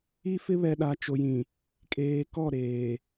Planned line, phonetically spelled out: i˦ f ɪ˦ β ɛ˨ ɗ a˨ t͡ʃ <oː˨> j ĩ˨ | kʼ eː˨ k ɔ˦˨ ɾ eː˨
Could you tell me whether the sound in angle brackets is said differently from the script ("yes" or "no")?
yes